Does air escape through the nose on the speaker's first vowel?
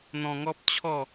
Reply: yes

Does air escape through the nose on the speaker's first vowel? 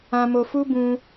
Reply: yes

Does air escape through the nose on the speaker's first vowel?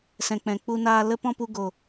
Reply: yes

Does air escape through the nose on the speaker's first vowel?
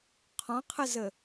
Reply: yes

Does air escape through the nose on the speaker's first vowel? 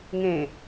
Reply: yes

